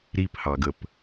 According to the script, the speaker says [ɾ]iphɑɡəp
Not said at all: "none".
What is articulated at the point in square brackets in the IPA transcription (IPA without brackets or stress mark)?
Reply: ɾ